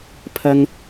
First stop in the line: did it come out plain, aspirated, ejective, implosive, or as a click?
aspirated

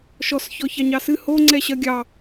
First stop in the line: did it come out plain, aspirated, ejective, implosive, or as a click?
click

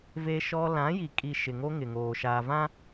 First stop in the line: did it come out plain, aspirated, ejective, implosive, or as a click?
ejective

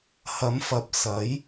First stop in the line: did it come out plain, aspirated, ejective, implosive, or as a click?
plain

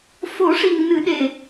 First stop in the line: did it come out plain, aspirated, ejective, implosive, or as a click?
implosive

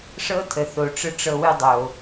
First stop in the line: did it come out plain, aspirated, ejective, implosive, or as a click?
aspirated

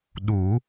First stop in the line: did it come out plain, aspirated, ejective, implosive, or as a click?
implosive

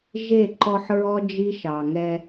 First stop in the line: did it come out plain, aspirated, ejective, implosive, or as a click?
click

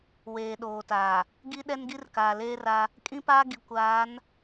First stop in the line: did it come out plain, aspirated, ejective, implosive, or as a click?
implosive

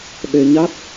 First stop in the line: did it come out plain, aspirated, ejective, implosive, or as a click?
implosive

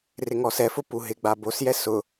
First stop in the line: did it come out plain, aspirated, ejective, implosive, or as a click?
plain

